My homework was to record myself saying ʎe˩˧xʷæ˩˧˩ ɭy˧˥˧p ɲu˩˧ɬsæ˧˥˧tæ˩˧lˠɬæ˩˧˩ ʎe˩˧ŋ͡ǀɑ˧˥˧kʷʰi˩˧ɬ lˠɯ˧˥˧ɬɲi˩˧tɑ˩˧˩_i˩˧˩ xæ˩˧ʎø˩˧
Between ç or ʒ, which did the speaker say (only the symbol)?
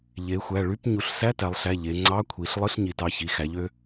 ç